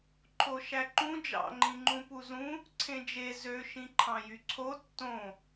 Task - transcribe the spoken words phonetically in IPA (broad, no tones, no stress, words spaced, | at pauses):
ǃʰoʃæǃũ d͡ʒɑ̰ŋ͡ǃĩ ŋ͡ǃũpuzũ | ǀʰẽd͡ʒe zø ʃĩǃʰɑ̃jyǀʰo tːõ